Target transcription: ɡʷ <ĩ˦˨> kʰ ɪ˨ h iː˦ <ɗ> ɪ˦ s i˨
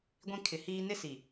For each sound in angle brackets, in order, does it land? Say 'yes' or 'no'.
yes, no

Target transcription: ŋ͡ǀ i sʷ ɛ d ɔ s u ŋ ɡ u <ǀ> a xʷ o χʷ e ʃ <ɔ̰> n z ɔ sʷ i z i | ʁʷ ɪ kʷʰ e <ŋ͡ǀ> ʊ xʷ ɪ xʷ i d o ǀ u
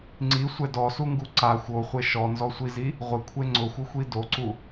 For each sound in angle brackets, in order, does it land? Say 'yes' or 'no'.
yes, no, yes

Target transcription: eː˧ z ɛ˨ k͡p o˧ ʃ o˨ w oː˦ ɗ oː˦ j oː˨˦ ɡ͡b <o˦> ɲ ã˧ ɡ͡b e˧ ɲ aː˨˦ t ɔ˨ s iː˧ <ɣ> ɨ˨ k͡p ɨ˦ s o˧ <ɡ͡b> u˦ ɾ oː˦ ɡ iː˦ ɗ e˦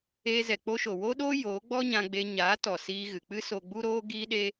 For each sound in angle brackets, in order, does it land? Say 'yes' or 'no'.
no, yes, yes

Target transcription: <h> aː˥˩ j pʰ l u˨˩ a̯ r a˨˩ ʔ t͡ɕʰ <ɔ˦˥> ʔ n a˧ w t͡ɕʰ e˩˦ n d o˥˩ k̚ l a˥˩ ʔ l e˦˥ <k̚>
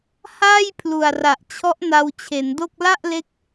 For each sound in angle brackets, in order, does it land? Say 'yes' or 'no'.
yes, yes, yes

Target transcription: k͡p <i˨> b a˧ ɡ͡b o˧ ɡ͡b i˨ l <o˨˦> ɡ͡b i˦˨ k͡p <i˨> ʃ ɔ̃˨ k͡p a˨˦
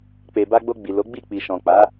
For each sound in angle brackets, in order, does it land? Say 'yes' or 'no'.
no, yes, yes

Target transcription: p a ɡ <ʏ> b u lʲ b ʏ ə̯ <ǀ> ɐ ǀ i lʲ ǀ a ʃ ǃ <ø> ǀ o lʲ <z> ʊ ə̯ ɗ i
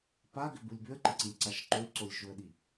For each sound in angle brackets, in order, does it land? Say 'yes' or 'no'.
yes, no, yes, no

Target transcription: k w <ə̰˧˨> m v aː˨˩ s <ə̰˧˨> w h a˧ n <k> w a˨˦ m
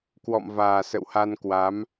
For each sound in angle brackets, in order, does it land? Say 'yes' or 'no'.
no, yes, yes

